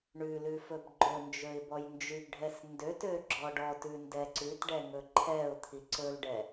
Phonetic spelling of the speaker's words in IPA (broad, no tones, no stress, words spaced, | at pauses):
ɳʉlʉ fɵbɡ͡ǃɵnd͡ʒɵɪ̯ bɔjnd͡ʒʉɡɖʱɛs ndøtø ɡ͡ǁɔɖɔtʉ ndɛǀʉtɖɛ ŋɵǃʰɛʊ̯t̪ʰi ǀɵlɖɛ